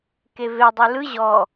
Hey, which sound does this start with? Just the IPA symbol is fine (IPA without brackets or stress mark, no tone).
k